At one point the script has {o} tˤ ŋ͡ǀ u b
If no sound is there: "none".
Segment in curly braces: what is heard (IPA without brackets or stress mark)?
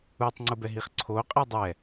u